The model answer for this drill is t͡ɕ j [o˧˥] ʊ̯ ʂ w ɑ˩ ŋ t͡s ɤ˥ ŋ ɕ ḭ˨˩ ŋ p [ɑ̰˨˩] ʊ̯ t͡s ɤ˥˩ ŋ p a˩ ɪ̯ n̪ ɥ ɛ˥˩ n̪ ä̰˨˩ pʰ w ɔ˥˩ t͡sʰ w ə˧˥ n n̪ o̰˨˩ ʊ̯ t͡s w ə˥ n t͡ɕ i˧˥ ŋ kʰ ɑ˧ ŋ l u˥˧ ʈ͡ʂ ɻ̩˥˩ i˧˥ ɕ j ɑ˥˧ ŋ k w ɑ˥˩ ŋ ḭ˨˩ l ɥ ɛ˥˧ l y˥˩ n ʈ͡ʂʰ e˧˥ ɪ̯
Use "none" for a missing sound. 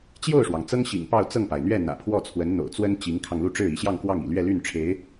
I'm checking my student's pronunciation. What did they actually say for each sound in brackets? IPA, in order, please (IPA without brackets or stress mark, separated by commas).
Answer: o˥˩, ɑ˥˧